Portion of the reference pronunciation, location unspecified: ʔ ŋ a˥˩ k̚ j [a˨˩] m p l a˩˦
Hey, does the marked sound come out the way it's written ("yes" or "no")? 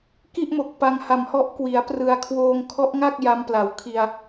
no